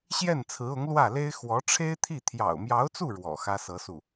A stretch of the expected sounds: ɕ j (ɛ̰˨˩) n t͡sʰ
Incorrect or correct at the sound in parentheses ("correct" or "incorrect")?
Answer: incorrect